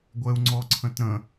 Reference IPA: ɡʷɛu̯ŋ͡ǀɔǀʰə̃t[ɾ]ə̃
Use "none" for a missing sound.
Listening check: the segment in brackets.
ɾ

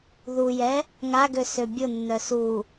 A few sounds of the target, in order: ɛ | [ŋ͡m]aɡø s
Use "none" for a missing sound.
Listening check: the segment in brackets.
ŋ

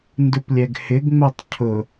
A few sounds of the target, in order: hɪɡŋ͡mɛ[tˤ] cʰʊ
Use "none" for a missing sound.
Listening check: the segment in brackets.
tˤ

